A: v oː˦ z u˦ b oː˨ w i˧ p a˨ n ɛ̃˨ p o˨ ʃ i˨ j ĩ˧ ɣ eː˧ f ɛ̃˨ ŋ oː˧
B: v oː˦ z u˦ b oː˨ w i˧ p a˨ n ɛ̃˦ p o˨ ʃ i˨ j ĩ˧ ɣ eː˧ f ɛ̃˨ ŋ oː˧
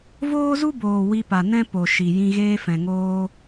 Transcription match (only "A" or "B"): B